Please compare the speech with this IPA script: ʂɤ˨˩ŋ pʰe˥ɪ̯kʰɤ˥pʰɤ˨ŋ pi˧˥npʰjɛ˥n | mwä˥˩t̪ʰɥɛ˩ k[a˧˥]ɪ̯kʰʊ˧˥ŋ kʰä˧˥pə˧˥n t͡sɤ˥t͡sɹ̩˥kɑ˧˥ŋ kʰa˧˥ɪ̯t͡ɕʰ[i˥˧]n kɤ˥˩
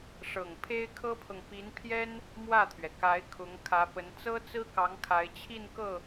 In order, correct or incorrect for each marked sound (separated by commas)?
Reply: correct, correct